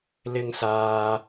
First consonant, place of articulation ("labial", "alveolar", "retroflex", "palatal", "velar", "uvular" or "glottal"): alveolar